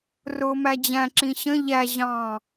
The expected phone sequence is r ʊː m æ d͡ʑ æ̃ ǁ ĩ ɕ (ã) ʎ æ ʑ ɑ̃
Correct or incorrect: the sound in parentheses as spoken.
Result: incorrect: ə̃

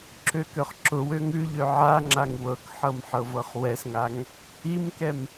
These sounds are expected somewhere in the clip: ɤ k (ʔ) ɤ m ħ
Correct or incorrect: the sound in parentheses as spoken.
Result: incorrect: ħ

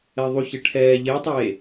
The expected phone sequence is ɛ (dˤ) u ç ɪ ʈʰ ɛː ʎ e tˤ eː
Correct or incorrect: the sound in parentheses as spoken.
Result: incorrect: ðˤ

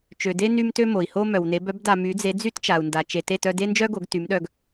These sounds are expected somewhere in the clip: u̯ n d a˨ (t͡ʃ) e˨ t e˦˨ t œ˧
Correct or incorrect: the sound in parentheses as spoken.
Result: correct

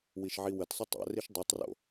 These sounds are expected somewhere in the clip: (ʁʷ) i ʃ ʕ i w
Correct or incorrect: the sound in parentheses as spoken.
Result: incorrect: w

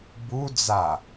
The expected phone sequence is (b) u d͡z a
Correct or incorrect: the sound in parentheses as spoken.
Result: correct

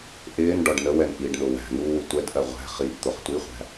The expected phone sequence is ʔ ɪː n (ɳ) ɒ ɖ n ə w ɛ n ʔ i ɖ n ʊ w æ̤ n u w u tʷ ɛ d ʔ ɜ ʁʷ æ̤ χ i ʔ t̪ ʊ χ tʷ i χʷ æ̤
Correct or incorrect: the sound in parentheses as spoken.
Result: incorrect: ɖ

